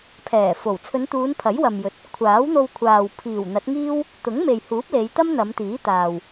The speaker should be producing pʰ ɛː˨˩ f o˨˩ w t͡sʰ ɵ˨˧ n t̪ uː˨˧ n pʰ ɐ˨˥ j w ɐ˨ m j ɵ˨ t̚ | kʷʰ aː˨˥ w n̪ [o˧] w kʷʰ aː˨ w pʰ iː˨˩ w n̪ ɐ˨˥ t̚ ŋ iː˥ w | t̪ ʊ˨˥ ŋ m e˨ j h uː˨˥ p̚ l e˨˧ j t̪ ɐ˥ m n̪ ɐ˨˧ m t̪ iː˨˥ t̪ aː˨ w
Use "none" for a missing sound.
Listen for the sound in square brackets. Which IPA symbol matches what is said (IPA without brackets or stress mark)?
o˧